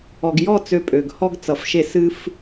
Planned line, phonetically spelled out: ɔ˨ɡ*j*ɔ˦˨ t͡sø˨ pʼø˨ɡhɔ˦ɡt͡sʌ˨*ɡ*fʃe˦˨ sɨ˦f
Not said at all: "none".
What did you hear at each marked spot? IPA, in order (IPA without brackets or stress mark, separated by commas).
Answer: j, none